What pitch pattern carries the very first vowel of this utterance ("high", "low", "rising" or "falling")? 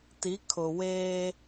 rising